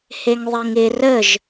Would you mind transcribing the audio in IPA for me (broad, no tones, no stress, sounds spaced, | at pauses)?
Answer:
h e ŋ ðˤ e ŋ ɪ r ə ʒ